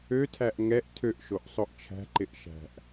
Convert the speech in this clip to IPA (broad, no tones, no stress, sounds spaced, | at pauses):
ø tʰ æ ʔ ŋ ɛ ʔ tʰ ø ʔ ʃ o ʔ sˤ o ʔ t͡ʃʰ æ̤ ǃ ɪ ʔ ʃ æ̤ ʔ